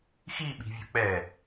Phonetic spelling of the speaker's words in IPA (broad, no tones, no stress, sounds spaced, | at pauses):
x i ɓ i̤ vʲ ṳ k͡p ɛ